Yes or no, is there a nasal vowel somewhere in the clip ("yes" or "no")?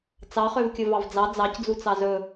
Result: no